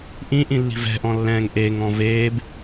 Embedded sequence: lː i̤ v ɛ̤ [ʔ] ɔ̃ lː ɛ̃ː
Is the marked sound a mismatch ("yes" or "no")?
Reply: no